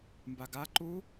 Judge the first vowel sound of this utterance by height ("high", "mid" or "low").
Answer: low